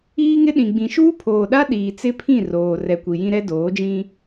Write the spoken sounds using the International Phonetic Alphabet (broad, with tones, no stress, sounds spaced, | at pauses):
iː˦ ŋ ɪ˦ ɗ ĩ˨ ɡ͡b ĩ˨ ʃ uː˦ pʰ oː˨ ɗ a˦ ɗ iː˨ t͡s ɪ˦ pʰ ĩ˦˨ r oː˨ r ɛ˨ kʷ i˨ j ĩ˦ ɾ ɛ˦ d oː˨˦ d͡ʒ ĩ˦